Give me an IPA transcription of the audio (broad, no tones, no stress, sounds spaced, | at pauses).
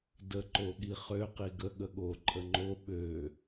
d ə ǃ o ɠ i χ ø q i ɡ ə ɠ ə ɠ o ǃʼ ə ŋ͡ǃ o ɓ ø